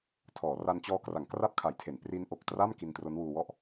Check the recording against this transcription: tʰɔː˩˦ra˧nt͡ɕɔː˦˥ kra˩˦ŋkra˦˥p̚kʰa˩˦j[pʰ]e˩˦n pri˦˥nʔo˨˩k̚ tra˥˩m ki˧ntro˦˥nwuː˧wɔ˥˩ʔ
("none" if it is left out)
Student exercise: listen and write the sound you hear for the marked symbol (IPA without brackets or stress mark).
tʰ